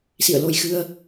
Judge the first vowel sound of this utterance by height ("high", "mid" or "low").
high